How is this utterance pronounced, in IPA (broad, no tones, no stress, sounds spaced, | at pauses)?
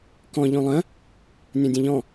k ɔ̃ ʎ õ lˠ ə̃ | nʲ ɔ̃ dʲ ə̃ ʎ ɔ̃